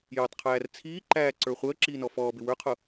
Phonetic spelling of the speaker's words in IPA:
j ʌ tˤ qʰ æː r t͡sʰ iː ǃ æː ǀ ə˞ χʷ əː ǁ iː n ɔ f ɔː b ɪ w ə˞ qʰ ʊ

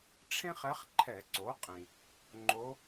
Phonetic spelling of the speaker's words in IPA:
ʈ͡ʂʰ ẽ˥ χ ɛ˧˥ χ ǃʰ ɛ˧˩˧ ǀ o˩˥ qʼ ĩ˩ | ŋ͡ǃ o˧˥

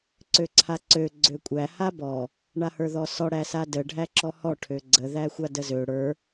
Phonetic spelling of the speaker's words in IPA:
ǀ ø ǀʰ a ǀ ø ɡ͡ǀ ø kʷʼ æ h a b ɔ | ɳ a h ə˞ ð ɔ s ɔ ɽ æ s a d ə ɖʱ æ ǁ ɔ h ɔ ʈʰ ø ɡ͡ǀ ə ð æ xʷ a d ə z ø ɽ ə˞

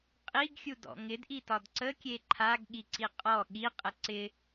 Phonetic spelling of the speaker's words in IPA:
qʼ i ɡ xʲ u d ɔ̰ ŋ ɪ d ʔ i t ɒ d ǀ ə kʲ e ǃʰ a ɡ ɠ i ǀ i qʼ ɔ ɠ i qʼ ə ǀ ɪ

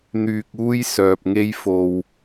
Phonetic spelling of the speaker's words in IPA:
n̪ yː˧ k̚ uː˥ j s œː˧ p̚ ŋ e˥ j f o˧ w

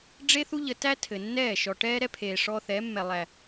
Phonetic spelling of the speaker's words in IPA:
ɖ͡ʐ e˦ θ u˦ ʎ ə˧ t æ˦ tʰ ɘ˨ nː ɛː˦˨ ʃ ɔ˨ ʈ ɛː˦ ɾ ɛ˦ pʰ eː˨ ʂ ɔː˧ θ ɛ˨˦ mː ɛ˨ lˠ æ˨

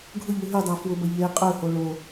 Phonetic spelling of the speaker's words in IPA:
ɡʱ ʊ ʎ u ɦ y dˤ a f w ʊ b ɐ ʎ e qʼ ø h o ɭ o

